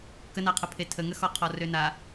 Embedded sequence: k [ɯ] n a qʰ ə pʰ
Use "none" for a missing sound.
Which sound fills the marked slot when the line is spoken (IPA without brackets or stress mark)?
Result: ə